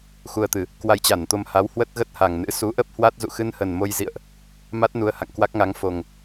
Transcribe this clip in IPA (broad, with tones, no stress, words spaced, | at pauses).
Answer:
xu˧ə̯t̪ɨ˨˩ | kwa˧jt͡ɕa˧˩nt̪o˧mha˨˦w hwə˦˥t̚ɣə˦˥t̚ha˨˩ŋnɨ̰˧˥ su˨˦ʔə˦˥p̚hwa˦˥t̚ zṵ˧˨xɨ˧nhə˨˩n mo˧j zḭ˧˨ə̯ʔ | ma˦˥t̚ nu˧ə̯ha̰˧˨ŋkwa˦˥k̚ŋa˨˦ŋ fo˨˩ŋ